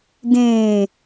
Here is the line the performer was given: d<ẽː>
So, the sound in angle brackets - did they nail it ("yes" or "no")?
yes